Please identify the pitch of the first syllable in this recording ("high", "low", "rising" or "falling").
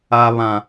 low